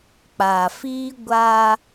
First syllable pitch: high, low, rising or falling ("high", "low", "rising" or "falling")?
low